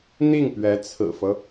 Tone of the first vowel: falling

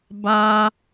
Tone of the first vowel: high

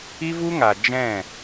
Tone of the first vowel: high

